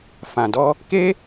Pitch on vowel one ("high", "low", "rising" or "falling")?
low